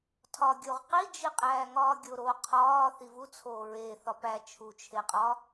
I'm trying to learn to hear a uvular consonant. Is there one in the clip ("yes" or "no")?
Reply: yes